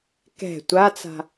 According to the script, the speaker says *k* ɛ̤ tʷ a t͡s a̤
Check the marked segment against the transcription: correct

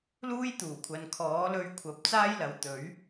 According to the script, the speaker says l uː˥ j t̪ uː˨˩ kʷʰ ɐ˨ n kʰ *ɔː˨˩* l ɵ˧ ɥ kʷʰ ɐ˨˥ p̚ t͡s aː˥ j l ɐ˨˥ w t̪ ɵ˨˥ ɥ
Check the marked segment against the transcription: incorrect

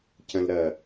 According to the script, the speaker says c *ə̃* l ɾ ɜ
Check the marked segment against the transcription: correct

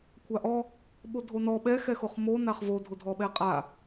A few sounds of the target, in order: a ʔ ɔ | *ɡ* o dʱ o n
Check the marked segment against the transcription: incorrect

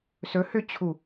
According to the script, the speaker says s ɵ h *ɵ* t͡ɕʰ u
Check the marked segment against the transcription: incorrect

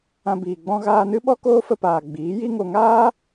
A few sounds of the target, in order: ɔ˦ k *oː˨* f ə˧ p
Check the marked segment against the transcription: incorrect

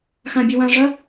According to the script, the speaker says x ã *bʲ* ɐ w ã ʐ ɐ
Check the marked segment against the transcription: correct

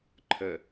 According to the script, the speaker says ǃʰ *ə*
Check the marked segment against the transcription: correct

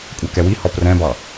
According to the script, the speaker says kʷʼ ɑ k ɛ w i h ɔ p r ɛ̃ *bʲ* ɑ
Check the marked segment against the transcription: incorrect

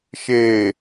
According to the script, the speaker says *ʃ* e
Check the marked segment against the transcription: correct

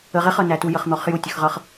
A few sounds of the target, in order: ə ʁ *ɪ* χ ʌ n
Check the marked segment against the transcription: correct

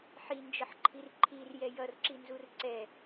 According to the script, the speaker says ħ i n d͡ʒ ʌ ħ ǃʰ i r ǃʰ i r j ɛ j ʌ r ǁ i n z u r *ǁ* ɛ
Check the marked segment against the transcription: incorrect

